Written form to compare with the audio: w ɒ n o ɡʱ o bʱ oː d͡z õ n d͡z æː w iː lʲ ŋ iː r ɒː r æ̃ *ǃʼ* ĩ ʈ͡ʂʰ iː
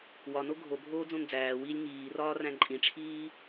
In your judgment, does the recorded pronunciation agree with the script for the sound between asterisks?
yes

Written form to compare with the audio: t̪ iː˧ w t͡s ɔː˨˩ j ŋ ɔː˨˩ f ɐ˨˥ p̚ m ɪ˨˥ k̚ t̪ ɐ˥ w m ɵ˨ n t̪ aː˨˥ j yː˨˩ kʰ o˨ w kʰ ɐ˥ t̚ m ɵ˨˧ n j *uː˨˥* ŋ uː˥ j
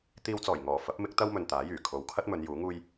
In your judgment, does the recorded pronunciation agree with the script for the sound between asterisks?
yes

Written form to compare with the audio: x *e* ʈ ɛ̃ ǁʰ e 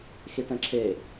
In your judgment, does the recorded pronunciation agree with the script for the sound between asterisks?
no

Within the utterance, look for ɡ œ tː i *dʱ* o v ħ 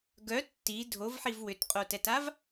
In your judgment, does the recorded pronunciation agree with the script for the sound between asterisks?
yes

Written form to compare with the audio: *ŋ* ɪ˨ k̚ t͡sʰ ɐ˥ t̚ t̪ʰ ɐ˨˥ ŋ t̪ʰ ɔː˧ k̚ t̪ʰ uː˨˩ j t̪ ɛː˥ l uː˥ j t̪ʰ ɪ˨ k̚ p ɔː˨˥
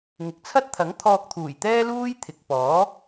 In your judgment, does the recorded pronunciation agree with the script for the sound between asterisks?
yes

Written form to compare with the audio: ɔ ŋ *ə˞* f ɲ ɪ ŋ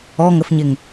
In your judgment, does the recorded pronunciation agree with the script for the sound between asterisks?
no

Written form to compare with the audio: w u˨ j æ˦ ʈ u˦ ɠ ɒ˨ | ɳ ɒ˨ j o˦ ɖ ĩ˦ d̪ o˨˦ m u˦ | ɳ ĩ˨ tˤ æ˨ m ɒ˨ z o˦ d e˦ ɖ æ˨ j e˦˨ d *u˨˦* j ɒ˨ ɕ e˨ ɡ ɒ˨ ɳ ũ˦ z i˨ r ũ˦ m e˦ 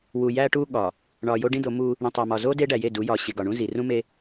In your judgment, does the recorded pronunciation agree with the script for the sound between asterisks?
yes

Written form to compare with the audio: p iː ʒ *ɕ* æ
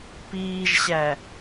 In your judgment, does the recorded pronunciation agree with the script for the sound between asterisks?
yes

